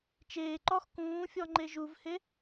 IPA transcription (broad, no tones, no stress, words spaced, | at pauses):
t͡ʃeː ǃɔx kũːfʲɔ ŋ͡ǃeʒuvhe